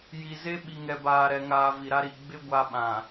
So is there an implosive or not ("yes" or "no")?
yes